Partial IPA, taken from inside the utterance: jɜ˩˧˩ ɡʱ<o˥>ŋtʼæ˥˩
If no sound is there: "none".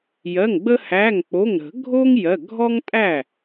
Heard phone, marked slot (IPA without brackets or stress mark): ɔ˥